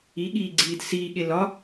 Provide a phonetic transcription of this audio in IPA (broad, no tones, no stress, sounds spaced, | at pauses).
i ɠ iː ɡ͡ǀ iː d s iː ɠ e l ɒ